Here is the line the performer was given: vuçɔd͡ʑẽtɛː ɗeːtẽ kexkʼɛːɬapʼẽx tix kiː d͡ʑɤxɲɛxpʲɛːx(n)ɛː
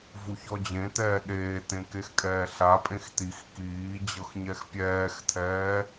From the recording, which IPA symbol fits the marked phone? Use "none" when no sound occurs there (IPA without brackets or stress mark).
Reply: tʰ